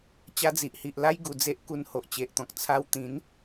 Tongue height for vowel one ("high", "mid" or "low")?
low